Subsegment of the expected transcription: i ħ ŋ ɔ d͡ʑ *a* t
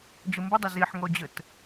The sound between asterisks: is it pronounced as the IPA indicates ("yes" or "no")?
no